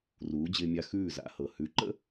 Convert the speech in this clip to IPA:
ruː˩˥d͡ʑɪː˧mʲa˧ xʉː˥˩za̰˩˥hɤ˩ hʉ˩˥ǃə̰˥

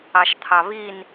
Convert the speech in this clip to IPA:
ɑʃt̪ʰɑβin

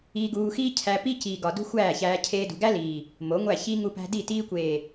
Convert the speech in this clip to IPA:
iː˧ɡuː˧xiː˦ cʰæ˧ pi˦ciː˨ɡɒ˨ dṳ˦xʷæː˦˨çæː˧ cʰeː˧dṳ˨ɡæ˦liː˨ | mo˨˦ŋʷæ˦˨ çi˧ ŋu˧pæ̤˧ di˦˨ tiː˧kʷeː˨

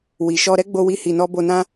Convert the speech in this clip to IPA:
wi˨ʃɔ˧ ɾɛ˦ɡ͡bo˧wi˧ hi˨nɔ˧ bo˧nã˦

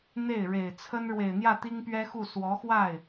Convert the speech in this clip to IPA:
n̪e˥˩ɪ̯ ɻe˨˩ɪ̯t͡sʰə˥n ɻwe˨˩ɪ̯n̪jä˥˩ t̪i˥ŋpɥɛ˥xu˥˩ swɔ˧˥xwa˥˩ɪ̯

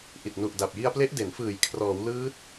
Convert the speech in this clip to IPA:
ʔi˨˩t̚ nu˨˩ʔda˨˩p̚ji˧a̯ple˦˥ʔ de˩˦nfɯː˨˩j kʰrɔː˩˦wlɯː˦˥t̚

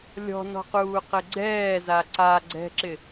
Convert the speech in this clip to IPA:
lʲɔ̤nɔ̤quːqɪ ɡ͡ǀɛːza ǀa ɡ͡ǀɛ̤ǁɪ

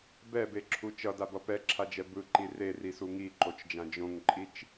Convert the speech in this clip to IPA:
bɛbeǁʰu t͡ʃʌdabʌ pɛǁʰad͡ʒɛ bɯǃi rerisu ŋiǃot͡ʃd͡ʒã d͡ʒõŋǃʼit͡ʃ

